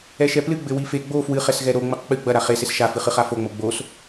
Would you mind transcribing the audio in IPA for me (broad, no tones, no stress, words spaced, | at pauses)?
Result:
ɛʃɛplɨ ɡ͡bɘwife ɡ͡bo fwɨχɛsɣɛ ɾo ŋ͡mɘqk͡pɨ ɡ͡bɐɾa χeses ʃafɨχɨ χafoŋ͡mo ɡ͡bos